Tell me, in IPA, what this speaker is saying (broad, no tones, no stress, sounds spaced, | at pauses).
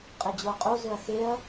qʼ e d͡ʑ o ɐ̯ qʼ o z ɵ ɐ̯ x e ɐ̯